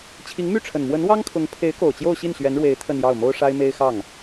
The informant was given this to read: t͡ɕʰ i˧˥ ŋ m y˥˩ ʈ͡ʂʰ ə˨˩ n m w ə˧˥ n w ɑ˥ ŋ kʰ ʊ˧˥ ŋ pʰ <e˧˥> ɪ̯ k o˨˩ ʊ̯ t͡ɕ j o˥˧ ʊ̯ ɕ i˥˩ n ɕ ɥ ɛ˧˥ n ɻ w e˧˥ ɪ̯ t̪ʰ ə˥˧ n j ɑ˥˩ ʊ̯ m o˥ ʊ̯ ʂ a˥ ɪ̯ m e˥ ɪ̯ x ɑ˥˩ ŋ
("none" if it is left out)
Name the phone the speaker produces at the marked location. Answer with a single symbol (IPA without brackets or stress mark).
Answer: e˧˥